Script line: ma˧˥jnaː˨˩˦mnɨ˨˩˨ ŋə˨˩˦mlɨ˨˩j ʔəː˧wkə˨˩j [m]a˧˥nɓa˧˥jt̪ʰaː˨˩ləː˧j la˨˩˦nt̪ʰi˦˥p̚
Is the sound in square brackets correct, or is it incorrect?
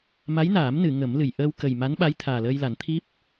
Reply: correct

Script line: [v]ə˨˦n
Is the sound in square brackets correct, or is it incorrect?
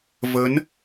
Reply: correct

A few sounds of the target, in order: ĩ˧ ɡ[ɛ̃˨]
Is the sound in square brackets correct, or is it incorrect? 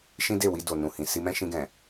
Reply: correct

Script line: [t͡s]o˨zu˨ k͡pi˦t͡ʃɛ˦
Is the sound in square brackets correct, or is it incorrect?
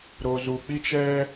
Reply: incorrect: ɾ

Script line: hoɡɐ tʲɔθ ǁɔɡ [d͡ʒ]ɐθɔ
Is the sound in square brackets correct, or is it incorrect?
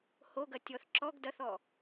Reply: incorrect: d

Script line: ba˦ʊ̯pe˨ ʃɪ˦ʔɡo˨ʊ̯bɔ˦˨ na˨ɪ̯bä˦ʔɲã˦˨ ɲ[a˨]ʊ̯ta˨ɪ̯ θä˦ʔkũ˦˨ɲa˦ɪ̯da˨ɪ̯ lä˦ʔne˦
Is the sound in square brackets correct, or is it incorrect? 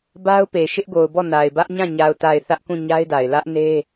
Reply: correct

